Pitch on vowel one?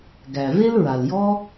low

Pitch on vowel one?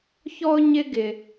high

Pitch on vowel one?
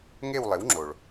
falling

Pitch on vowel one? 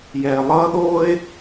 low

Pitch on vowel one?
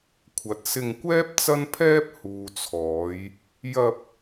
low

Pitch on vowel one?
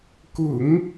low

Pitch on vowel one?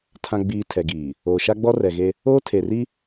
low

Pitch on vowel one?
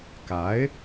rising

